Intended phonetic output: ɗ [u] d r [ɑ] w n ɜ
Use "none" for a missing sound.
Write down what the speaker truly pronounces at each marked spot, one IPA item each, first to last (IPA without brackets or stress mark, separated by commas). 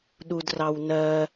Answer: u, ɑ